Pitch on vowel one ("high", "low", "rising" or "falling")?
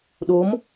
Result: rising